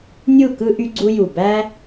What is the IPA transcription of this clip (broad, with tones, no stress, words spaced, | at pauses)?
nʲu˥˩kɯ˦ ʔy˦ɡ͡ǀu˦ju˧˩ bæ˦